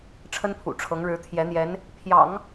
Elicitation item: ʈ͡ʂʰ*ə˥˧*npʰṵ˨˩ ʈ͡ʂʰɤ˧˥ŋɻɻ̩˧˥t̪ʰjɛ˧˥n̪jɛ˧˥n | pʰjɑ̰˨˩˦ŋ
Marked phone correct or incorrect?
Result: incorrect